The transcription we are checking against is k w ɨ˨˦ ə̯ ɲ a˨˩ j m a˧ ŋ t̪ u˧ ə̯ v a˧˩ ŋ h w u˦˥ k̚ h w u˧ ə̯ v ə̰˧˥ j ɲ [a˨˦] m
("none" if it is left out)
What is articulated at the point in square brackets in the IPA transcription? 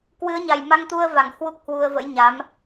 a˨˦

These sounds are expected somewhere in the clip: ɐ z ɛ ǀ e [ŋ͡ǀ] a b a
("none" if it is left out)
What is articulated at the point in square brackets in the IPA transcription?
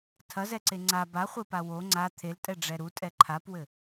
ŋ͡ǀ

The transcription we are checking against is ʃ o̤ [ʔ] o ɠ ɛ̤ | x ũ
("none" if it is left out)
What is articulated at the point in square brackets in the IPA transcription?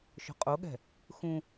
qʼ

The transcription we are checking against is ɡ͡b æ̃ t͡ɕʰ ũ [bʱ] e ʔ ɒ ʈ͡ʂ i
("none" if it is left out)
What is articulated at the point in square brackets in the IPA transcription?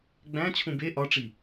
b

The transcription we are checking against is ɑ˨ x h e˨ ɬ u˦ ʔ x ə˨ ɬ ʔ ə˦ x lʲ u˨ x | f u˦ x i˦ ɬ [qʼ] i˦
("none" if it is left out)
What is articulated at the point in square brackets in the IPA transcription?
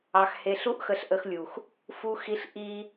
ʔ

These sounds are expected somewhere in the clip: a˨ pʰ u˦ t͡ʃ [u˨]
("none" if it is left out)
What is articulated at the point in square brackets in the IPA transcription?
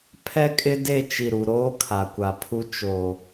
o˨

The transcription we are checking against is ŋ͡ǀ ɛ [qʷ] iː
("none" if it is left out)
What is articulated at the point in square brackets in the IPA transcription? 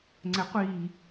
qʷ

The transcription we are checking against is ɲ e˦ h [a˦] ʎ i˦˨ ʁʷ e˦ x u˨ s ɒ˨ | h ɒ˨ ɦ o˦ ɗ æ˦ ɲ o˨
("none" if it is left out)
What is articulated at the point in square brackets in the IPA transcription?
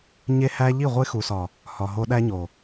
æ˦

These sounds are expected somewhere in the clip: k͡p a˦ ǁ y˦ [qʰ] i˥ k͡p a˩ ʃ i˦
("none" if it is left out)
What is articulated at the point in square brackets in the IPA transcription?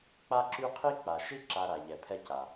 qʰ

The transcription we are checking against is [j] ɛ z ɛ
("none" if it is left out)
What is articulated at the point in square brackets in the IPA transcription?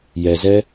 j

